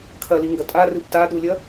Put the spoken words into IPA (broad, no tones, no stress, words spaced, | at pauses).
kʰɐliŋɡɐ tʼarɨb taɗulʲɐ